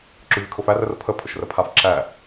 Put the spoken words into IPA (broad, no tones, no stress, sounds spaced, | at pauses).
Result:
ǁ ʊ vʲ ʊ kʰ ʊ f æ r ə r pʰ ə pʰ ʊ ʃ r ə pʰ a f ǁ æ